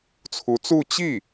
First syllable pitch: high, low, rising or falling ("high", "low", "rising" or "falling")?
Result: rising